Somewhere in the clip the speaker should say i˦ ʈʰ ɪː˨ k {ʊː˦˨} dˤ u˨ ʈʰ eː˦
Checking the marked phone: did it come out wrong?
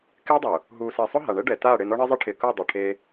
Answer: no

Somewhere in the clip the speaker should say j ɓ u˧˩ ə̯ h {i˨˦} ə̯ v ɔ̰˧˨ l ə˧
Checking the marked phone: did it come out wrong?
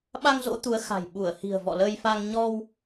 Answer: yes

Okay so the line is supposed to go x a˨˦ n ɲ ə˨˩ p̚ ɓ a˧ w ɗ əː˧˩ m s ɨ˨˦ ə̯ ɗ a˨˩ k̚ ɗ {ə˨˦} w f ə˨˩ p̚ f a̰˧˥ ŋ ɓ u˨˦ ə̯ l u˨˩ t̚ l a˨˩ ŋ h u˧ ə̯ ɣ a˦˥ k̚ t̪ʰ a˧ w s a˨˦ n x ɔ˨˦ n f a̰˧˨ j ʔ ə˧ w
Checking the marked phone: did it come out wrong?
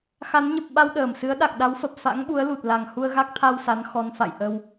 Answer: yes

